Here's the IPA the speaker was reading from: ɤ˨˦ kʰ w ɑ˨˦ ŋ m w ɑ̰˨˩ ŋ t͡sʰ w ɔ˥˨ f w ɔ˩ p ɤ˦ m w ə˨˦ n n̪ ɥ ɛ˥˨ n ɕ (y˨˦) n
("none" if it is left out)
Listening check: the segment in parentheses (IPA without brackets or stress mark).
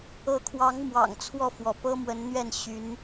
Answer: y˨˦